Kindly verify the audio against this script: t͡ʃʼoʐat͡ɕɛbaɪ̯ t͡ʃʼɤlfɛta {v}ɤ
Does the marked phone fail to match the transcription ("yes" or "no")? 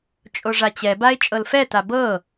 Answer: yes